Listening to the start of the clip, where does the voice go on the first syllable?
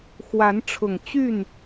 rising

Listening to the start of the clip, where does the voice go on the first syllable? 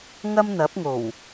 high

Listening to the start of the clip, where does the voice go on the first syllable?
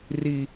low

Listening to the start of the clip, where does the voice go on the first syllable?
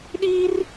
high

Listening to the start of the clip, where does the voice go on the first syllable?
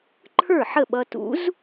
falling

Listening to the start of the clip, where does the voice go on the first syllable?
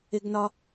high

